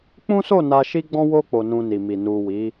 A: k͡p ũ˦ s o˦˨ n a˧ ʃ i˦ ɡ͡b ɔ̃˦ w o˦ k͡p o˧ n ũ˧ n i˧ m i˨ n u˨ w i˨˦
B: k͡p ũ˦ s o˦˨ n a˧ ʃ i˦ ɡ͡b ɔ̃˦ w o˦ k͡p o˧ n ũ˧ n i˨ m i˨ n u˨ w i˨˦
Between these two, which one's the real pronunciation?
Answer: B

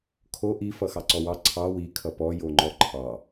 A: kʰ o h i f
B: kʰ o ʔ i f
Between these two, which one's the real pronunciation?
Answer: B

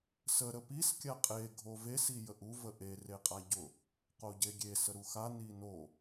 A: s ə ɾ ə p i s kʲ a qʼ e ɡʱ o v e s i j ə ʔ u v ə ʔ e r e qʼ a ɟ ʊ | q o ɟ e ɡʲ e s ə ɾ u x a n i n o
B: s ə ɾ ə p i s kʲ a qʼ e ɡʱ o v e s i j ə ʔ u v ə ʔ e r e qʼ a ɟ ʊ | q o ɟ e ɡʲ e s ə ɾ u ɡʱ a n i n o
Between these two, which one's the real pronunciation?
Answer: A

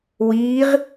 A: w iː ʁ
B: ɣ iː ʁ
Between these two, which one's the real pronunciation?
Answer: A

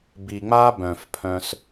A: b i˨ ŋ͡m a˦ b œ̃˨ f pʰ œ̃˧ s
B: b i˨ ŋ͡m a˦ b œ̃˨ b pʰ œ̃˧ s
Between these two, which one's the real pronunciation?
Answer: A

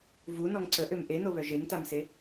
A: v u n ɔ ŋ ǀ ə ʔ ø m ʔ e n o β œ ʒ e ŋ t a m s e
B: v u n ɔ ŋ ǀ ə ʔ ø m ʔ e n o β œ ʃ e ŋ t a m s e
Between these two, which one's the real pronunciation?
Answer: A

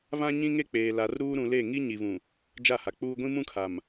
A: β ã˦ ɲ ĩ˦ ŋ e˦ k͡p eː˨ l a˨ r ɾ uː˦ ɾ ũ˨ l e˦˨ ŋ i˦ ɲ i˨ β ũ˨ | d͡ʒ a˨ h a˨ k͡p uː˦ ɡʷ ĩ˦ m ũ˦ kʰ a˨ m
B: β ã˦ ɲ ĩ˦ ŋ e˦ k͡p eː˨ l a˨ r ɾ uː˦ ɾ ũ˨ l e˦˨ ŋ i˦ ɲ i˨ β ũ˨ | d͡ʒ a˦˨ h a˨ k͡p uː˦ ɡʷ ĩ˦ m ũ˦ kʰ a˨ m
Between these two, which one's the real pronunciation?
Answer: B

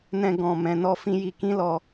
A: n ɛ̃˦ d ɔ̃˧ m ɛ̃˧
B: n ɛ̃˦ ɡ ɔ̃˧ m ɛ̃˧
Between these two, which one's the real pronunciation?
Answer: B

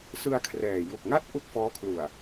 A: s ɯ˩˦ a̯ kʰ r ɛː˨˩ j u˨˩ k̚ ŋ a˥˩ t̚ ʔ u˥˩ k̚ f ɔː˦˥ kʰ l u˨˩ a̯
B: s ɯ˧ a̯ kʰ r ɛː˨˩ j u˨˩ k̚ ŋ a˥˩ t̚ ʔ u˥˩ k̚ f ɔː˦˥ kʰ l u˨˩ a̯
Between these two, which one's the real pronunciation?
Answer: B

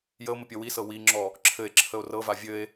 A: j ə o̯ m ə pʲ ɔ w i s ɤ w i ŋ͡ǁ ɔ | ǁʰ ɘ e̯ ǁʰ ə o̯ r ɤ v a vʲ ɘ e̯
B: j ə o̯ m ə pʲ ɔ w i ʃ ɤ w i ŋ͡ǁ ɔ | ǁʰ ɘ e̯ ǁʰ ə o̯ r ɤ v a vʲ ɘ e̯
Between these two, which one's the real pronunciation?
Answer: A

